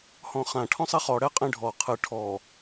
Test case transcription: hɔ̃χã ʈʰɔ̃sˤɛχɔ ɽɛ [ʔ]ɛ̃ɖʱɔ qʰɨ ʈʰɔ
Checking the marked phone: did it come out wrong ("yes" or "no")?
yes